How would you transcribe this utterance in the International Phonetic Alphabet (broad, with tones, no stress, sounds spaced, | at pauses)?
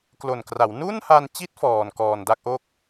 k l o˨˩ n k r a˩˦ w n u˥˩ n h a˧ n t͡ɕ i˦˥ t̚ f ɔː˨˩ n k ɔː˨˩ n d a˥˩ k̚ ʔ o˦˥ k̚